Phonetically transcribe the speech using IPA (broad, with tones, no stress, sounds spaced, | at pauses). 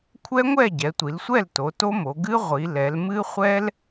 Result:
kʷʰ ɛ˦˥ ŋʷ ɛ˥˨ ɟ ɛ˩˧ tʷ i˩˧ l sʷ ɛ˥˨ l t o˩˧ t o˦˥ m o˩˧ ɡ ɨ˦˥ ʁʷ i˩˧ l ɛ˩˧ l m ɨ˦˥ χʷ ɛ˦˥ l